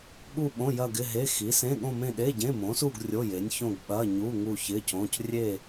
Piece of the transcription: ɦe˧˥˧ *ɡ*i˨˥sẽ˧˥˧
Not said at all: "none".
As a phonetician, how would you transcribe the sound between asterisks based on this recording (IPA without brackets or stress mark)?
x